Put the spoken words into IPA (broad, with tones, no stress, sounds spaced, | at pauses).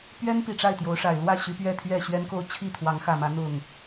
p ɥ ɛ˦ n p i˨˩ ʈ͡ʂ a˥˨ ɪ̯ t̪ j o˨˦ ʊ̯ ʂ a˨˩ ɪ̯ l w ä˥˨ ɕ y˨˦ p ɥ ɛ˥˨ t̪ʰ ɥ ɛ˥˨ ɕ ɥ ɛ˦ n k o˥˨ ʊ̯ t͡ɕʰ i˥˨ t̪ʰ w ɑ˨˦ ŋ x ä˨˩ m ä˨˦ n̪ ʊ˥˨ ŋ